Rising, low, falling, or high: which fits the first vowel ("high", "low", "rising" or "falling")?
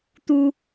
high